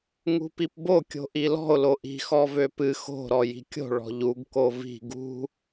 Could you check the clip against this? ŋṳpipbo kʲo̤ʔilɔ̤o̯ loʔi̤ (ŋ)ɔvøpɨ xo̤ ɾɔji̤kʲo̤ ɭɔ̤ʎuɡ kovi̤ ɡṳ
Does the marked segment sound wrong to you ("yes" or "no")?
yes